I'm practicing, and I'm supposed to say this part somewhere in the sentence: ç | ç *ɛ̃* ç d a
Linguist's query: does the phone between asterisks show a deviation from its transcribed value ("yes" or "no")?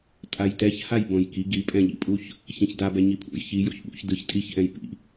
no